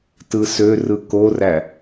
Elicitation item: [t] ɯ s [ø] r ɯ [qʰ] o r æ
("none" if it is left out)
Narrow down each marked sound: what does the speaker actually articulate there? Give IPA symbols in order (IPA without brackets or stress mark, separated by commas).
t, ø, k